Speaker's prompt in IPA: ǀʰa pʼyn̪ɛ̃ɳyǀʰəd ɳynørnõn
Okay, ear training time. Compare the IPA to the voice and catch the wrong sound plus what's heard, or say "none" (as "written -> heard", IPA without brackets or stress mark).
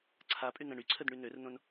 none